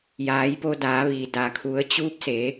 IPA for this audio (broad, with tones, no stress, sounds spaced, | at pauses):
j aː˩˧ j p o˧ d aː˩˧ ʋ iː˩ d a˩ kʰ u˩˧ ə̯ t͡ɕ uː˧˥ p̚ s e˩˧